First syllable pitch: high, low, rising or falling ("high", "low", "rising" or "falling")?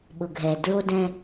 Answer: low